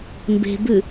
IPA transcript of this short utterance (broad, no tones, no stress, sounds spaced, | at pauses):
m b e̤ b ʉ